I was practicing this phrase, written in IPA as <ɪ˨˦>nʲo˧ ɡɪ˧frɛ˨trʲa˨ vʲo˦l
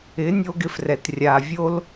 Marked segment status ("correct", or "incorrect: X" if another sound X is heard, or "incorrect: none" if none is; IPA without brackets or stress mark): correct